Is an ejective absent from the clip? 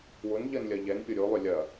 yes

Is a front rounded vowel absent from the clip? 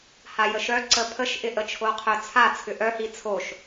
no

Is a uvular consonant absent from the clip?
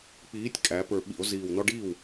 yes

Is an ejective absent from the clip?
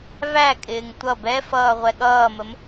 no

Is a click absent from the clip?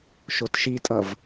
yes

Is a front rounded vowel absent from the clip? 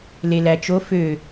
no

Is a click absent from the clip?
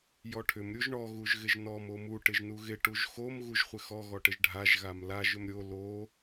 yes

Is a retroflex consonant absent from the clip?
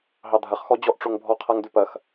no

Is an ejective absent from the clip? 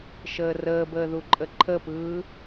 no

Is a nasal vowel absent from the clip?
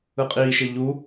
yes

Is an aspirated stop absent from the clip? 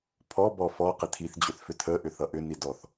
no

